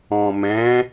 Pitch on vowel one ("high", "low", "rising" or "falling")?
low